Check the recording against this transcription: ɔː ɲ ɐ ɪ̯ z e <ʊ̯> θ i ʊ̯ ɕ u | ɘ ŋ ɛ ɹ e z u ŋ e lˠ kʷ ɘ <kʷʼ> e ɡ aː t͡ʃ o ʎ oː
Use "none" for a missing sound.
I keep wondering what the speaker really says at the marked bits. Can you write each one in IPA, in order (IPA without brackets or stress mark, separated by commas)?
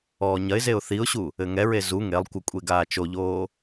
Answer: ʊ̯, kʷʼ